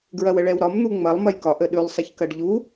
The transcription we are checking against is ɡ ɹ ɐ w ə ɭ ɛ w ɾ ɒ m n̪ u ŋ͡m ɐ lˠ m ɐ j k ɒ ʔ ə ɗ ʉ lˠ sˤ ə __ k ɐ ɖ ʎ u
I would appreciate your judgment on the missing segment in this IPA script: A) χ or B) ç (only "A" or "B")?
B